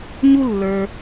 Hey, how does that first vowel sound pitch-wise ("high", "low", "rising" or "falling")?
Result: high